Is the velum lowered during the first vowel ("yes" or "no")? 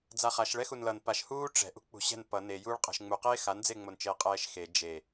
no